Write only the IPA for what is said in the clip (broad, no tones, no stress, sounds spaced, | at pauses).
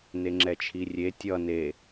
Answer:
n e ŋ͡ǁ ɛ t͡ʃʰ i rʲ e tʲ ʌ n e